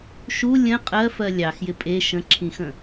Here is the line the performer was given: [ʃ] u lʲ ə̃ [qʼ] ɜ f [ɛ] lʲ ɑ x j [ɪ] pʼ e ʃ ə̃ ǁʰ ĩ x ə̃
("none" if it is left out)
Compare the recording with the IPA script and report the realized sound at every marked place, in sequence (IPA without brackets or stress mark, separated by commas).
ʃ, qʼ, ɜ, ɪ